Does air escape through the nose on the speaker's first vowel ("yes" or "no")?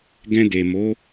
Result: yes